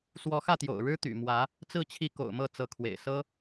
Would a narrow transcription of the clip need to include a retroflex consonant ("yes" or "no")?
yes